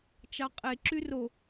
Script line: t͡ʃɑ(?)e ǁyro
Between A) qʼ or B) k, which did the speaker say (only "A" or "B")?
A